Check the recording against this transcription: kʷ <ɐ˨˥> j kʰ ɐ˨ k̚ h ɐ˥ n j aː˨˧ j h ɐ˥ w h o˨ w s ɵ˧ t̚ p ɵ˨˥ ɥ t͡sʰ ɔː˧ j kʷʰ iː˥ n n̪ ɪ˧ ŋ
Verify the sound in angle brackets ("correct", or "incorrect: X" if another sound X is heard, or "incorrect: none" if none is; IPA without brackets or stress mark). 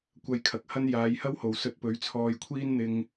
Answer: incorrect: ɐ˧